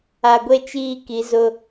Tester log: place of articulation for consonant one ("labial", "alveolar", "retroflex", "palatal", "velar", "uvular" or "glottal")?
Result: velar